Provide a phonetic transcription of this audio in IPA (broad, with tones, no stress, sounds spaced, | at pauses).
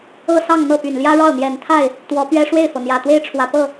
ɤ˥˧ s ɑ˥˧ ŋ n̪ ɤ˥˩ p y˨˩ n l j ä˥ ɻ ɑ˥˩ ʊ̯ n̪ j ɛ˨˩ n t̪ʰ a˥˩ ɪ̯ | t̪ w ɔ˧˥ p ɥ ɛ˥ ʂ w e˥˩ ɪ̯ f ɤ˩ n̪ j ä˨˩ t̪ w e˥ ɪ̯ ʈ͡ʂʰ w ä˨˩ p ɤ˥˩